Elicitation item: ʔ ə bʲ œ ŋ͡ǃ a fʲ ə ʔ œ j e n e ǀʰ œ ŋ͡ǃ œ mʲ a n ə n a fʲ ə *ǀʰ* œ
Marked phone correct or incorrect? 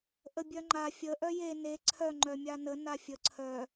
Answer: correct